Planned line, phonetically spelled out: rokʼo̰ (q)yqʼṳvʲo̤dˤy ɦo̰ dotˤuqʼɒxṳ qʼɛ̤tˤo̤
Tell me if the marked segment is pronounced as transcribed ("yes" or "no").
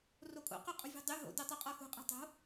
yes